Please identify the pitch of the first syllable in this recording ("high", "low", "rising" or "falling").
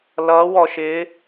rising